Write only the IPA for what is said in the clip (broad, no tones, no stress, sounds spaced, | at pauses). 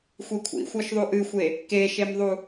xʷ i kʷʰ ḭ xʷ ɤ ʃ ðˤ u ʔ ɨ xʷ e | k e ʃ e m ðˤ u